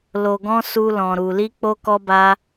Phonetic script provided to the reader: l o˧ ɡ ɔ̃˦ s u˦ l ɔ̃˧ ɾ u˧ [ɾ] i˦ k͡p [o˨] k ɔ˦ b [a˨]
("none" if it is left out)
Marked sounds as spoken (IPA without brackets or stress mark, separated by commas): l, o˦, a˦